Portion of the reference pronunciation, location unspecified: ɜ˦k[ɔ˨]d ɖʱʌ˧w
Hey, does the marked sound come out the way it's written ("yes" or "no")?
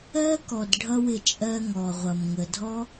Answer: yes